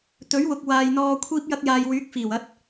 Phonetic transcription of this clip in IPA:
t̪ɵ˨˥ɥwʊ˨k̚waː˨jn̪ɔː˧ kʷʰiː˥p̚jɐ˥k̚jaː˧j wyː˨˥k̚fiː˨˩w ɐ˧t̚

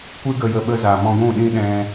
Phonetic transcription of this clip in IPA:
kʷɨ˦ɡə˧jə˧ ɓə˧za˨mɔ̃˧ ɡʷũ˦˨ɗĩ˦ ɗɛ̃˧

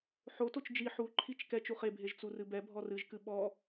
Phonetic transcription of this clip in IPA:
ħotot͡ʃ d͡ʒi ħuǃʰit͡ʃ kɛt͡ʃ uχebʱeʒ t͡surɨbɛbʱɔ rɨʒkɨ ɓɔ

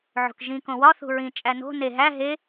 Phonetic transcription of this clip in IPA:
ʕo̤kʒĩ kõwɒ θṳɹĩ t͡ʃʼæno̤ ne ɦæ ɦe

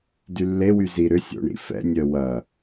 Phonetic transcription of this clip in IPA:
dylːewy ziɾʏsʲo̰ ɳḭfɛ̰nʲœ wɐ

